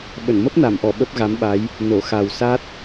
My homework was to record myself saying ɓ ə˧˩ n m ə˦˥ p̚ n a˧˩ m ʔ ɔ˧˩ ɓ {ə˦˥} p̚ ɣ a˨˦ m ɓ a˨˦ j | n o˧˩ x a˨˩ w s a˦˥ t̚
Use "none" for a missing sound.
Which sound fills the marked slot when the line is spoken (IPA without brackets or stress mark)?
ə˦˥